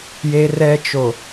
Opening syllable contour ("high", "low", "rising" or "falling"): high